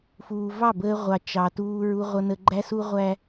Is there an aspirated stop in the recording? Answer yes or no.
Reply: no